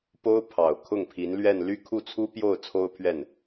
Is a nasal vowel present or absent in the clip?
absent